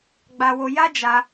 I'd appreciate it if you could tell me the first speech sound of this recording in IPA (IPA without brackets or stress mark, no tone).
ɡ͡b